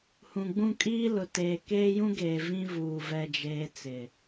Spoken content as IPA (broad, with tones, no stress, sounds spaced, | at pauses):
h ũ˨ ɡ͡b ũ˦˨ kʼ iː˦ l ʊ˨ t eː˨ k eː˦ j ũ˦ ɡ eː˨ v ĩ˦ v uː˨ v ɛ˦ d͡ʒ eː˦ t͡s ɪ˨